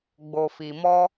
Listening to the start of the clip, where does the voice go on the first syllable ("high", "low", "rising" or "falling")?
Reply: low